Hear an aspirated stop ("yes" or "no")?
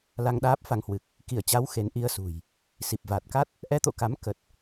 no